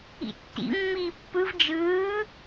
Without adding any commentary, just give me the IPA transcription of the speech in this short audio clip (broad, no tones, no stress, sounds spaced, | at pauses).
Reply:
ḭ tː ḭ mː iː pː ɯ v d͡ʒ ɯː